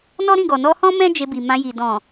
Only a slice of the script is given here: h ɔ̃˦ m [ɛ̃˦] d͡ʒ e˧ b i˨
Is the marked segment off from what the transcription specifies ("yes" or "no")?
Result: no